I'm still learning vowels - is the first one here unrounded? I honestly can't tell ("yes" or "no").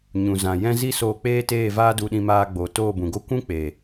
no